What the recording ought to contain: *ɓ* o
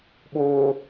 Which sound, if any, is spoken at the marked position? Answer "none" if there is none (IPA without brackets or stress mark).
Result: ɓ